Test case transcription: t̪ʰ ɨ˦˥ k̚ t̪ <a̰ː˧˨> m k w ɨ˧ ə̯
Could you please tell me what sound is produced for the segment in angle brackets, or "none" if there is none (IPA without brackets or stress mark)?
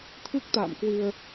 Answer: a̰ː˧˨